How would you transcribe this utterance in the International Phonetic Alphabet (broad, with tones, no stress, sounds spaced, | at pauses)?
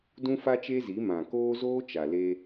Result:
d ũ˦ f a˦ t͡ʃ eː˦ z i˨˦ m ã˨ k oː˦ z oː˦ t͡ʃ a˨ l e˦